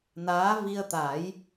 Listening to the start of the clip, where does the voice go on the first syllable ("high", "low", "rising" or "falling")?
rising